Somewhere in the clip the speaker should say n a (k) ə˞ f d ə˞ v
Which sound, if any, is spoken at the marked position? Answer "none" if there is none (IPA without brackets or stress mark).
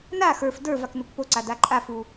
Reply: x